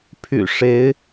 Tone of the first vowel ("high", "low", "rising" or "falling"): low